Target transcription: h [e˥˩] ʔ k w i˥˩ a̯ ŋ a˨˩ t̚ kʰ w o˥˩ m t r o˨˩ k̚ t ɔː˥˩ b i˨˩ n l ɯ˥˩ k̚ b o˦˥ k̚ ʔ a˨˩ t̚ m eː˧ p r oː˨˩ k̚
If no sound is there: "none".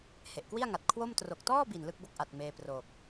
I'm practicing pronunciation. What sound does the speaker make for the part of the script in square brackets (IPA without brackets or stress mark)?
e˨˩